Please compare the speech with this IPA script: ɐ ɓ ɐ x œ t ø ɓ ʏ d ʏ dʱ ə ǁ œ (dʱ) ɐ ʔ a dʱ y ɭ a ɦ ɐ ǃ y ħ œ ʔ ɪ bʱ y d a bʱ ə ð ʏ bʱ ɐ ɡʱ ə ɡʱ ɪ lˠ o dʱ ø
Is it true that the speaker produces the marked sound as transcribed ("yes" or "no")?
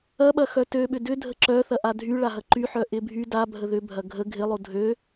no